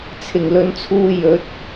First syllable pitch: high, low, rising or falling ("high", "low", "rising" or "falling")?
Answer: low